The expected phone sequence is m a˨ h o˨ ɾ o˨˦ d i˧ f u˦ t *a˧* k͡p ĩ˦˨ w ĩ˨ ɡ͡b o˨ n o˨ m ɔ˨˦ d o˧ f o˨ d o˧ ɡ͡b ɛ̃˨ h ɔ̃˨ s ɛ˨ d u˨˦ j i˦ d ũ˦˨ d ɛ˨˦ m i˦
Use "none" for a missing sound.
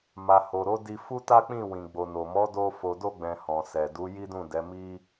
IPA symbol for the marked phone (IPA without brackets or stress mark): a˦